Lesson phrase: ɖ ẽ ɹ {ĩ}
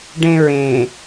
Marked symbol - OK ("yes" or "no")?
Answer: no